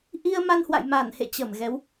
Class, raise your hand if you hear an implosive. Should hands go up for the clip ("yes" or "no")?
no